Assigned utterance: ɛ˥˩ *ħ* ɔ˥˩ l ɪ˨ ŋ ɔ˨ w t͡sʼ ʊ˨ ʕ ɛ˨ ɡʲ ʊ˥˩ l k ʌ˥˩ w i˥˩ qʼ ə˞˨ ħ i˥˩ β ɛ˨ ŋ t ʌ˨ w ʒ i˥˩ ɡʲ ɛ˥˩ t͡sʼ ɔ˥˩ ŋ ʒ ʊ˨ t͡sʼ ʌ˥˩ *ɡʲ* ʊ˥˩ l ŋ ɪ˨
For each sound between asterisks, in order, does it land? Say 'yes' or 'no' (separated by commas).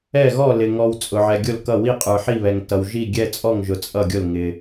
no, yes